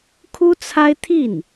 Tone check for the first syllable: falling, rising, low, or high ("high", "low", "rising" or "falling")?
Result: high